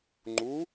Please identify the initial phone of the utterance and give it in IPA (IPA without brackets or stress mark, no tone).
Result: ŋ͡ǃ